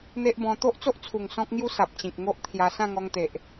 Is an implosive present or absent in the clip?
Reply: absent